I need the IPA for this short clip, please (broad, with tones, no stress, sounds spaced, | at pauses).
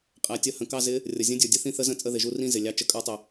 qʼ æ˩ tʲ ə˧˥ h ə̃˩ k ɑ˦˨ z ɪ˧˥ | rʲ ʌ˩ zʲ ə̃˧˥ dʲ ə˞˩ dʲ ə˧˥ θ ĩ˧˥ θ ə˧˥ z ə̃˧˥ t͡sʼ ə˦˨ ð ɪ˩ ʒ u˦˨ r ĩ˦˨ z ɪ˩ lʲ ɑ˧˥ t͡ʃ ə˩ kʼ ə˞˧˥ tˤ ɪ˩